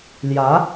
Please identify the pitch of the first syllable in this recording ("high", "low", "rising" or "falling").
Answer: rising